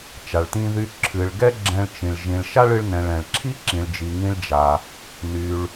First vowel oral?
yes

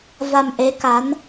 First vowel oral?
yes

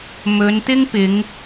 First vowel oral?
yes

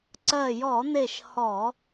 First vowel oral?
yes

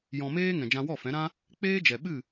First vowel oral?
no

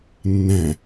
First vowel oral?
no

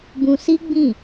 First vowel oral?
no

